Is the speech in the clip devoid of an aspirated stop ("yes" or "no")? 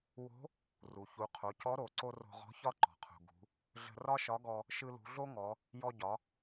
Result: no